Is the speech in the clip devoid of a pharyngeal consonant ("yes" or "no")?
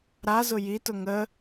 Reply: yes